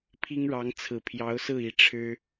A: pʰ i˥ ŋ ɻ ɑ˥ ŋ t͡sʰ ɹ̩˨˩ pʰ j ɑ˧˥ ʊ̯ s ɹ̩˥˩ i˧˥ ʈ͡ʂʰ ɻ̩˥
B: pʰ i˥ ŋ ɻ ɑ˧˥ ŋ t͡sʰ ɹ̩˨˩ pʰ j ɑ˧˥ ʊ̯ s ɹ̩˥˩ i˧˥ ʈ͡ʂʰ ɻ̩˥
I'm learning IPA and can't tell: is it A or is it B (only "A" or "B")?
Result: B